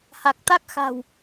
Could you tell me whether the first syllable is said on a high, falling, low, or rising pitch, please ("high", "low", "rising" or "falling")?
low